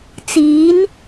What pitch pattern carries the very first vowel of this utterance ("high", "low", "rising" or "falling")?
rising